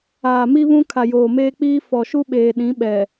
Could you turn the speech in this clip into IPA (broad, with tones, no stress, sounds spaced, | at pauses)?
aː˨ m i˦ β ũ˦ kʰ a˨ j oː˨ m eː˦ k͡p iː˦ f ɔ˨ ʃ u˦ ɓ eː˨ ɗ ĩ˨˦ ɓ ɛ˨